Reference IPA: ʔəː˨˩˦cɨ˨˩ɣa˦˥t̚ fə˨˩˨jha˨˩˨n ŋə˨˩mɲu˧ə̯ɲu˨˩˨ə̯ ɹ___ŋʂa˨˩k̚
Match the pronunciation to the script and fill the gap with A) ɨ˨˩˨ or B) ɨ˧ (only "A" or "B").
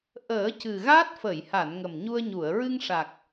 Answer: B